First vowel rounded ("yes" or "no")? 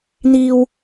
no